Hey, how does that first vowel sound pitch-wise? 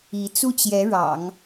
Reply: rising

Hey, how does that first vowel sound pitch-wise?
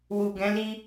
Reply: low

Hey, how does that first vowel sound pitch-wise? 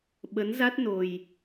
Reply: rising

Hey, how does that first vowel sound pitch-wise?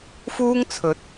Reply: high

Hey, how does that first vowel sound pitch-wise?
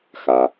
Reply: low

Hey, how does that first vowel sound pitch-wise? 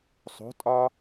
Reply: rising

